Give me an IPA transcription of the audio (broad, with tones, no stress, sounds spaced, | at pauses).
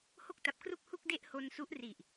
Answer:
h o˥˩ k̚ t a˨˩ p̚ k r u˥˩ k̚ h u˥˩ k̚ d e˥˩ ʔ h o˧ n s u˦˥ ʔ r i˨˩ ʔ